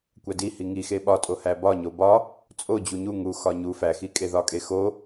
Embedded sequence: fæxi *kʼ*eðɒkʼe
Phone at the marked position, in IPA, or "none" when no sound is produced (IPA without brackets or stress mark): kʼ